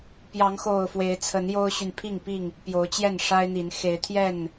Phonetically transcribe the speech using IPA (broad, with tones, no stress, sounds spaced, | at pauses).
p j ɑ˨˦ ŋ x o˨˩ ʊ̯ f w e˨˦ ɪ̯ t͡sʰ ə˨˦ n j o˦ ʊ̯ ɕ y˨ n pʰ i˥˨ ŋ p i˥˨ ŋ | p j o˨˦ ʊ̯ t͡ɕ j ɛ˥˨ n ʂ a˦ ɪ̯ n̪ i˨˦ n x e˨˦ ɪ̯ t̪ʰ j ɛ˥˨ n